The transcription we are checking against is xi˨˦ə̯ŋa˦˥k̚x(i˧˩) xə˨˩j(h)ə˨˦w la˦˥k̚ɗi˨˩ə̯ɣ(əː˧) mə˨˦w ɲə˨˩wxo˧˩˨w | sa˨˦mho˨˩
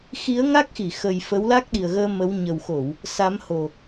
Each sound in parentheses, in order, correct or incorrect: correct, incorrect, correct

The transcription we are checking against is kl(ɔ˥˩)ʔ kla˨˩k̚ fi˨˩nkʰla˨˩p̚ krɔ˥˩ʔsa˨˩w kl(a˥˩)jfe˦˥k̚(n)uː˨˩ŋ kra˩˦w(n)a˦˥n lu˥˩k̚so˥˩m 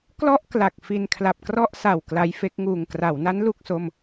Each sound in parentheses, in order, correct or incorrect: correct, incorrect, incorrect, correct

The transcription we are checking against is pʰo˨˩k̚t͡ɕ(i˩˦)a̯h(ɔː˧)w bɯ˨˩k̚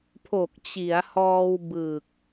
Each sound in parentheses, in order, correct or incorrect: correct, correct

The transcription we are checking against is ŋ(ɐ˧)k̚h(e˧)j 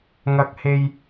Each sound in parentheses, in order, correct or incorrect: correct, correct

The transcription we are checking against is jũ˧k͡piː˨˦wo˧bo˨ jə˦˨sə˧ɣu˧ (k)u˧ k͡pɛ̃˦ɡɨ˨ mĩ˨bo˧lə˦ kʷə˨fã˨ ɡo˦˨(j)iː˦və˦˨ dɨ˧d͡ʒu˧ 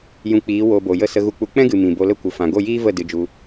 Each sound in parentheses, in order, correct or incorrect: incorrect, correct

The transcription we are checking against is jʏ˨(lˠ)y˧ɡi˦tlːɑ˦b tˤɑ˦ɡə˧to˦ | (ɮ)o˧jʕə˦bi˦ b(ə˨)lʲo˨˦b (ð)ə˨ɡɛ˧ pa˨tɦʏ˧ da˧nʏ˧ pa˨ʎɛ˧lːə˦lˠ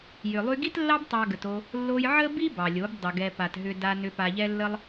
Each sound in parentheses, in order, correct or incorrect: correct, incorrect, incorrect, incorrect

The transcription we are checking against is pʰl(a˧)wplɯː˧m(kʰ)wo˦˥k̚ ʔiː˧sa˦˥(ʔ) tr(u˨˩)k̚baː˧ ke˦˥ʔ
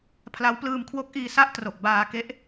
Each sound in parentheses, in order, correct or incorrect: incorrect, correct, correct, incorrect

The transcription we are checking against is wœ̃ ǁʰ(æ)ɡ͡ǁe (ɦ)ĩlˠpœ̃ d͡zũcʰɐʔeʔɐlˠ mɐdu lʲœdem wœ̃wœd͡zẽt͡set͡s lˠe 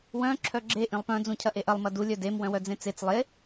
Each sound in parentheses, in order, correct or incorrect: incorrect, incorrect

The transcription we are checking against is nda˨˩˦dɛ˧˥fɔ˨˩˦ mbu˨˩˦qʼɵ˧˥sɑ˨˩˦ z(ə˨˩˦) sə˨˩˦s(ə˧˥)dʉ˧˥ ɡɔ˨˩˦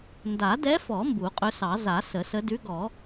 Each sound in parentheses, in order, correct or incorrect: incorrect, correct

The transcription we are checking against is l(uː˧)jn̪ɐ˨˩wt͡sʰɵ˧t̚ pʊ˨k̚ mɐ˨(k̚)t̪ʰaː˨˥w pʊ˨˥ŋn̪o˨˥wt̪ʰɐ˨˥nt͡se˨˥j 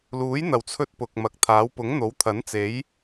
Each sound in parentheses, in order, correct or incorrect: incorrect, correct

